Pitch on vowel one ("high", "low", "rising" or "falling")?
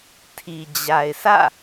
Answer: low